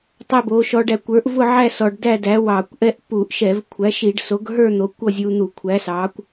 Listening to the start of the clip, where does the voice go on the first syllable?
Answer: falling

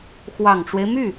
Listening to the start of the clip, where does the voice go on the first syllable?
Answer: low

